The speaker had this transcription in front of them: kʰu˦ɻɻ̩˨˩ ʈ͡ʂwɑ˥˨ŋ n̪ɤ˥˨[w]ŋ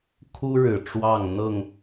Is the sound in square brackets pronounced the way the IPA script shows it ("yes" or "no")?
no